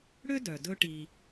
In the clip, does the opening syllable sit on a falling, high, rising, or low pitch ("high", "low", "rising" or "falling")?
high